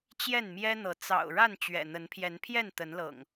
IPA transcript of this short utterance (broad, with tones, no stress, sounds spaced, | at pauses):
t͡ɕ j ɛ˥˨ n m j ɛ˦ n̪ ɤ˨˦ t͡s ɑ̰˨˩ ʊ̯ ɻ a˥˨ n t͡ɕ ɥ ɛ̰˨˩ n̪ ə˨˦ n pʰ j ɛ˨˦ n pʰ j ɛ˥˨ n t̪ ə˨˦ n l ɤ̰˨˩ ŋ